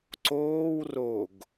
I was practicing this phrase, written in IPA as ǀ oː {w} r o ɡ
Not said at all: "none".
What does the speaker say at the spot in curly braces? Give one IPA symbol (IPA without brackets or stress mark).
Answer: w